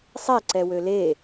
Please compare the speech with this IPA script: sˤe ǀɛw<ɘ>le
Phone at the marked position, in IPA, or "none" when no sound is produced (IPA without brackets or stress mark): ø